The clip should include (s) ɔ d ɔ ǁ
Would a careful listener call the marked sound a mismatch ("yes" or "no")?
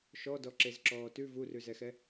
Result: yes